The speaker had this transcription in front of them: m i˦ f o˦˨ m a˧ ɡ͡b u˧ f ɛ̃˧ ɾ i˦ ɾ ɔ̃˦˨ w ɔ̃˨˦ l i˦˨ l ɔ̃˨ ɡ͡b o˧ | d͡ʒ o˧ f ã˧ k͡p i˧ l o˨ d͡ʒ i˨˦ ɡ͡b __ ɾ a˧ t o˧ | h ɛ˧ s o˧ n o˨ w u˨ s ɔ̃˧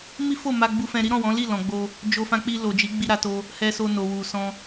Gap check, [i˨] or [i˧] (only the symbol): i˧